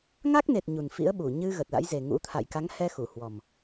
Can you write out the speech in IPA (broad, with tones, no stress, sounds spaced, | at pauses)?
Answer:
ŋ a˦˥ k̚ n e˨˩ t̚ ɲ u˨˩ n f ḭ˧˥ ə̯ ɓ u˧˩ ɲ ɨ˧ ɣ ə˨˩ t̚ l a̰˧˥ j z e˨˩ ŋ ṵ˧˥ t̪ʰ a̰˧˨ j k a˨˦ ŋ h ɛ˧ x u˧˩ h w ɔ˨˩ m